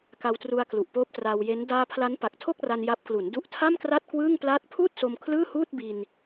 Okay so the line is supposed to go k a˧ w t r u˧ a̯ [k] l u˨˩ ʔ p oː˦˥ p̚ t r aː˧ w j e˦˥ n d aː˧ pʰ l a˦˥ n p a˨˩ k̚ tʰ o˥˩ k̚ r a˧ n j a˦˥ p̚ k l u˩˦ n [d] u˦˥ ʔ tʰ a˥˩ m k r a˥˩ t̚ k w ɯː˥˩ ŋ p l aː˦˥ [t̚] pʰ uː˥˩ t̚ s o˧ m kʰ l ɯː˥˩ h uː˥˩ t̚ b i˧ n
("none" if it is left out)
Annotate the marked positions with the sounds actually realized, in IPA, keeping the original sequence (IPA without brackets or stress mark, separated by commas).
k, d, t̚